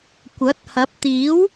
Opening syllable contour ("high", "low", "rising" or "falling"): rising